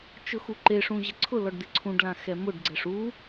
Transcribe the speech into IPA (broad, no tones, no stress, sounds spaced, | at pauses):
t͡ʃ ʊ x u ǃ e ʂ ũ ʑ ɪ ǀʰ ʊ l ɔ ɖ d̪ ɪ ǀʰ ũ ɖ l ã x ɛ m ʊ ɖ ɡ͡ǀ ɛ ʂ u